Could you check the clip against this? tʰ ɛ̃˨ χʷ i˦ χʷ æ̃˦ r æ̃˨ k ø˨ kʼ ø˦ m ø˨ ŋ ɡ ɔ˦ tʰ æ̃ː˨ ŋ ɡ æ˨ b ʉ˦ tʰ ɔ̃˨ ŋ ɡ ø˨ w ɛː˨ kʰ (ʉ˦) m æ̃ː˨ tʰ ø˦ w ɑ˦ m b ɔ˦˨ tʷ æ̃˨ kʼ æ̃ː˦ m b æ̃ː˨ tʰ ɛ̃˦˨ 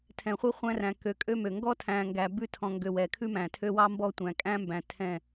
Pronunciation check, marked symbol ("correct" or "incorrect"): correct